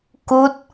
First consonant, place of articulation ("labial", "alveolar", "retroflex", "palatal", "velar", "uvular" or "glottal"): velar